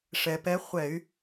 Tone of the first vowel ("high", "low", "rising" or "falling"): low